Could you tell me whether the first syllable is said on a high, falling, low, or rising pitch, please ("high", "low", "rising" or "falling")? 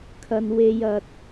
low